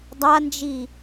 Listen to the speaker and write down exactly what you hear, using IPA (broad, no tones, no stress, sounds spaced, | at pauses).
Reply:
dˤ a n d͡ʒ i